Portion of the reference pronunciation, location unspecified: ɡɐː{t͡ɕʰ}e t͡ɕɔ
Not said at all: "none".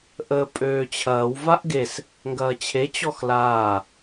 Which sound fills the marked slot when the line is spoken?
t͡ɕʰ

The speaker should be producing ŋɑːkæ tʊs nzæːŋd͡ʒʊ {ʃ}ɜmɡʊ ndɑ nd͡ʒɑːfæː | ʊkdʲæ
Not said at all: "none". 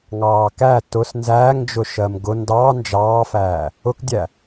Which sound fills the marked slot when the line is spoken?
ʃ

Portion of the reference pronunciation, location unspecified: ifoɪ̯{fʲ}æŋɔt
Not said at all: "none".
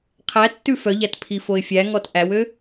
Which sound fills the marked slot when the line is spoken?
fʲ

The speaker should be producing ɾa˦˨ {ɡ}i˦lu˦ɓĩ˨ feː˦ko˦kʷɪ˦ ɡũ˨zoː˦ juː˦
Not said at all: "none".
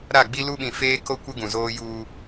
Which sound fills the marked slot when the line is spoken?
ɡ͡b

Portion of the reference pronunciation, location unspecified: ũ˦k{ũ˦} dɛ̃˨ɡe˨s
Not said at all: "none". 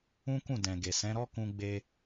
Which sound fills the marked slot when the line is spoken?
ũ˦˨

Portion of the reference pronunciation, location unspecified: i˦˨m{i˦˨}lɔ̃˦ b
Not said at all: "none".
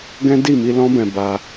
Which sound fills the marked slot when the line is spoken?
i˧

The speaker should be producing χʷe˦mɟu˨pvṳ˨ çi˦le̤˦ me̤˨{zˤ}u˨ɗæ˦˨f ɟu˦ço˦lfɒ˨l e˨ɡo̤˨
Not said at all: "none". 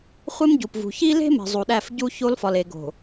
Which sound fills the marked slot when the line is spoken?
zˤ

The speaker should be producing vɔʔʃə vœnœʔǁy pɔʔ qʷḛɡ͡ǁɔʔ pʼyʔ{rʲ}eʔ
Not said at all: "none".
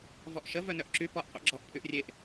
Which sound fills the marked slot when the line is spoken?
rʲ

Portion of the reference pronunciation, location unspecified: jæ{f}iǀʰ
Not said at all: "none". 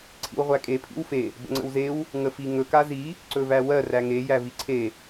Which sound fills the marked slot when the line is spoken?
v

